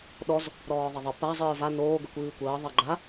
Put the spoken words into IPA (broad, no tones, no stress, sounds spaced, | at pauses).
ɗ ɔ z | ɾ ɔː ðˤ ɐ ðˤ ə p a zˤ ɨː v a n oː ɡ ə kʷ ɨː kʷ əː ðˤ ɐ ɡ͡ǃ a